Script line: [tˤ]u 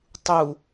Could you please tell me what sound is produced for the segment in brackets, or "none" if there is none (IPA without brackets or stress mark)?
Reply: tˤ